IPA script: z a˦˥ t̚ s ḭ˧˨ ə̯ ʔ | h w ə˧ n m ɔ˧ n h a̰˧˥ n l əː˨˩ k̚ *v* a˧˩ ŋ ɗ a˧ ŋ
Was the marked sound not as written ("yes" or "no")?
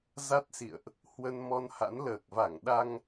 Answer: no